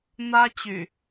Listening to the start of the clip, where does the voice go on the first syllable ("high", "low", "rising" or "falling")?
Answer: high